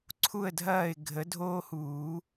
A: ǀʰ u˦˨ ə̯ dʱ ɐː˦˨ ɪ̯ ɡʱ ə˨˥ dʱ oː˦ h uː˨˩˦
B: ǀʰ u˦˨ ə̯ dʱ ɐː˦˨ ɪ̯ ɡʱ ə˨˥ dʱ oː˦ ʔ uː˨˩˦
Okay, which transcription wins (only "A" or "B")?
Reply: A